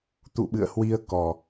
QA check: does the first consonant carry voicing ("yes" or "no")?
no